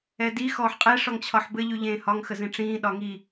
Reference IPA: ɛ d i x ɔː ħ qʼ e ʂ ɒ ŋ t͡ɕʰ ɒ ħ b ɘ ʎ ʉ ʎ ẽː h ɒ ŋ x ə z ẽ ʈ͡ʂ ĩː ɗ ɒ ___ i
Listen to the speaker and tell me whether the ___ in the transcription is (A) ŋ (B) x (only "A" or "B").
A